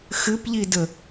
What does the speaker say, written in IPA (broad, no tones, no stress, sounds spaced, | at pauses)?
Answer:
x ɨ p ʎ i d ə